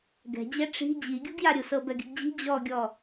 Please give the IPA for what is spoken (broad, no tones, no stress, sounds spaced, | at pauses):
ɡ ɛ̤ d͡ʑ ɛ ʈ͡ʂ i̤ d͡ʑ i ɡʲ u ɡ j a ɾʲ u s ɤ b ɛ ɡ i̤ ɡ d͡ʑ i̤ d͡ʑ ɔ ɡʲ ɔ